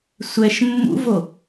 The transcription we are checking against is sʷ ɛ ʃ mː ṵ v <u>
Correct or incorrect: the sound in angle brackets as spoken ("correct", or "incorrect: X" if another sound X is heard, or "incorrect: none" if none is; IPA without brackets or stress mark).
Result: incorrect: o